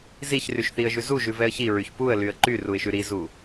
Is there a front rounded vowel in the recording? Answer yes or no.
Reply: yes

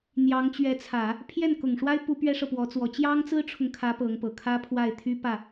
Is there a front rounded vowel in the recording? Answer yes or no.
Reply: yes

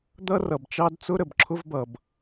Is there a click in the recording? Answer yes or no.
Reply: yes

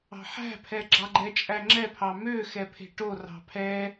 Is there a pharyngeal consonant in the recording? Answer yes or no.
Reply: yes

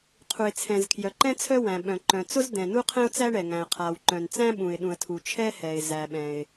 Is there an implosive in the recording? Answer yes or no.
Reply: yes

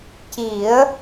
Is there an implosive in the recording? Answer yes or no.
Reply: no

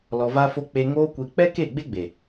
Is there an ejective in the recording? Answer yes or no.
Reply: no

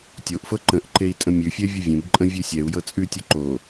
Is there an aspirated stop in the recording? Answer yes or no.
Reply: no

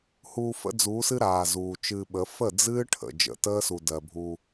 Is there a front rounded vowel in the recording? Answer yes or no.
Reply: no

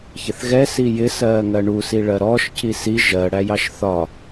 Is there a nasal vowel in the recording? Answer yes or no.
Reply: no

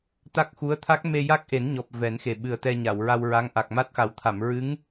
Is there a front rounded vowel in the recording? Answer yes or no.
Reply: no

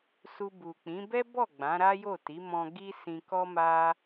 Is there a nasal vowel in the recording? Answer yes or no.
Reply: yes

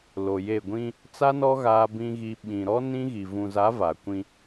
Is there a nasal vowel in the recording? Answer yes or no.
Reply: yes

